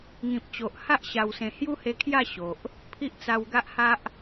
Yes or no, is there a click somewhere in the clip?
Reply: no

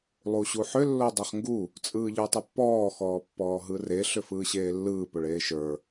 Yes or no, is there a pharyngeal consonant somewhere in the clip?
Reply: yes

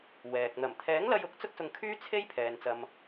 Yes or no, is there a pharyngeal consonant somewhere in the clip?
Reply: no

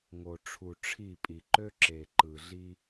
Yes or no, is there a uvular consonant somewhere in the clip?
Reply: no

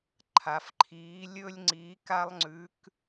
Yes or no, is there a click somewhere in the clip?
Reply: yes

